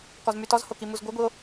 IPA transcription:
kɔzmytɔzho kimuzɡʷə˞ɡʷio̯

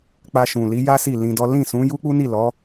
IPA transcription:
k͡pa˧ʃũ˨li˨˦ja˦ si˦˨lĩ˧dɔ˦ lĩ˦˨sũ˨˦ju˦ k͡pu˦ni˦˨lɔ˨˦

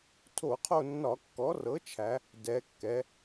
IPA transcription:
tʰo˧˩˧qʰo˦˨nːɒ˧˩˧ kːɔ˩˥rɤ˩˥t͡ʃʰæ˩˧ | dɛ˩˧kːɛ˩˧

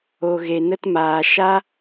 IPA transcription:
o˨ ɣe˨nə˧tmaː˨ ʃa˦

